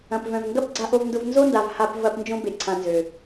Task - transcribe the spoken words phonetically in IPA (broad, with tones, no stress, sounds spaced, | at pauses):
ɐ̃˨ p v œ̃˨ v ŋ ɡ ɐ˦ p ɡ͡ǀ a˨ ʔ o˨ v n d ʊ˨ v n z o˦ n d a˨ v h a˨ p v ɐ˨ p n d͡ʒ õ˦ b e˨ ǀʰ ã˨ n z ø˨